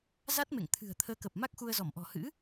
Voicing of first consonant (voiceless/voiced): voiced